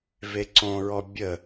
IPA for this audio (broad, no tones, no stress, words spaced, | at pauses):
veǀõɹɔ bʲə